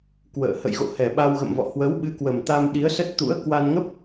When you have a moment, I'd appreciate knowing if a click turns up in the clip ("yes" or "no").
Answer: no